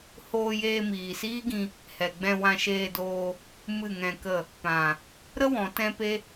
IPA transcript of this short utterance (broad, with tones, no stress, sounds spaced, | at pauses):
h oː˧ j eː˧ m iː˨ s iː˦ ɡ ĩ˧ | h ɛ˨ ɡ͡b ɛ̃˧ w ã˧ ʃ eː˧ d oː˧ | m ɨ˦˨ ŋ ɛ̃˧ k ə˦˨ | p ã˨ | ɾ ə˦ w ɔ̃˨˦ t ɛ̃˦ p e˦